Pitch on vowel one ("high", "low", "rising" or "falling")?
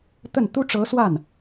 falling